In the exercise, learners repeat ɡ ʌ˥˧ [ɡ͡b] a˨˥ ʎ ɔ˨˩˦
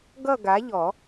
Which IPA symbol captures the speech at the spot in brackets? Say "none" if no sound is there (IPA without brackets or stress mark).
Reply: ɡ